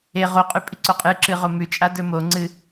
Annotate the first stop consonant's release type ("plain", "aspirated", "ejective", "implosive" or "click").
ejective